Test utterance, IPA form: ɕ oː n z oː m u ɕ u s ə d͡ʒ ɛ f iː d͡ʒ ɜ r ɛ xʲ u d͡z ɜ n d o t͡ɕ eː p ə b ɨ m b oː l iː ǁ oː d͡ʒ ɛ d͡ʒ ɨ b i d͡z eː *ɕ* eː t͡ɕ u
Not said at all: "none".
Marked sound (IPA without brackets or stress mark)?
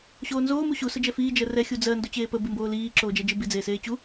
s